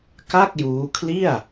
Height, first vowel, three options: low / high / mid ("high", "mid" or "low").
low